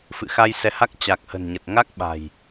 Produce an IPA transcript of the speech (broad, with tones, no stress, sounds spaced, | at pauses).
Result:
f ɨ̰˧˨ x a˧ j s ɛ˨˦ h a˦˥ k̚ t͡ɕ a˨˩ k̚ h ə̤˨˩ n ɲ ə˨˩ t̚ ŋ a˦˥ k̚ ɓ a̤˨˩ j